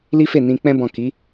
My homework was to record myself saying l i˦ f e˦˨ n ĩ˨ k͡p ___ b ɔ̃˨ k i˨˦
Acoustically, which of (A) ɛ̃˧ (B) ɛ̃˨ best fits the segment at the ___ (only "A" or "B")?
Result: A